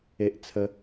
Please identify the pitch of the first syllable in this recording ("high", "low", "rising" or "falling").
high